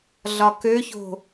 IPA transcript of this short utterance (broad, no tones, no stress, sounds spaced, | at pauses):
ɮ ɒ k ø ç o̤